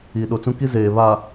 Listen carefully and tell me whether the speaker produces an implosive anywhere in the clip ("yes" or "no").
yes